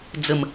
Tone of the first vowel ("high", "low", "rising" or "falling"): falling